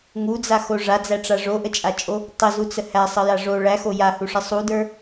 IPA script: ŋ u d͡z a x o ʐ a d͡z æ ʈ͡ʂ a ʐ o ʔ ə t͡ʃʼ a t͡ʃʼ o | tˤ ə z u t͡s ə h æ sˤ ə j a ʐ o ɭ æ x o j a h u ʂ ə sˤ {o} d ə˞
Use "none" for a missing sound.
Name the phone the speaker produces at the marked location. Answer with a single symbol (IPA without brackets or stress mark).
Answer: u